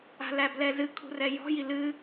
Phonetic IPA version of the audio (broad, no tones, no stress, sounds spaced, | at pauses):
a̤ l æ b l ɛ z ɨ kʰ ṳ r ɛ j ɔ̤ j i l ɨ